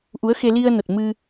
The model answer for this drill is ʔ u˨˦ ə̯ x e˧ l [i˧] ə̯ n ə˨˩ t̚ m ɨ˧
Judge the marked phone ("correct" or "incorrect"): correct